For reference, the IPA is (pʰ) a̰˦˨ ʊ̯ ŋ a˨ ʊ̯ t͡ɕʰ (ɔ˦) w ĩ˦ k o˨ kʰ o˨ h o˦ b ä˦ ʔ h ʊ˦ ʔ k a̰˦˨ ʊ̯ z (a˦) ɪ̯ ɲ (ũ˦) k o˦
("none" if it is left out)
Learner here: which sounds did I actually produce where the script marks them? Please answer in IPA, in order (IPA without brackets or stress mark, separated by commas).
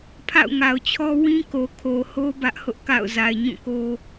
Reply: pʰ, ɔ˦, a˨, ũ˦˨